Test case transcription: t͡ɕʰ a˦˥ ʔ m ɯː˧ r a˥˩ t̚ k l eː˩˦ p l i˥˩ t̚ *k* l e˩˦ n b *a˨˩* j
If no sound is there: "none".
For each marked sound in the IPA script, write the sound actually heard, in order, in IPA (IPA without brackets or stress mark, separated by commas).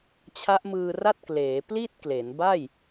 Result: k, a˥˩